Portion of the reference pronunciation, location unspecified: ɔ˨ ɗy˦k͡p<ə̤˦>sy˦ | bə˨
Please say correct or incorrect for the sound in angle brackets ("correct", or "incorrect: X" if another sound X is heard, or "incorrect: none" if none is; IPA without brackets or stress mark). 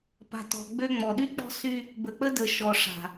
incorrect: ɔ̤˦